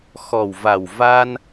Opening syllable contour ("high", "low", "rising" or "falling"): low